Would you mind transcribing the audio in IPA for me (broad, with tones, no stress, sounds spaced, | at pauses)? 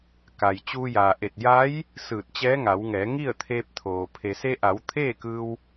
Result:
k a˩ j t͡ɕ uː˧ j aː˩ ʔ e˧˩ t̚ j a˧˥ j | s ɯː˧˩ t̚ t͡ɕ ɛː˧˥ ŋ a˩˧ w ŋ ɛː˩˧ ŋ i˥˨ ə̯ t̪ʰ eː˧ p̚ t̪ʰ oː˩ pʰ e˩ s e˧ ʔ a˩˧ w t̪ʰ eː˥˨ k ɯː˧ w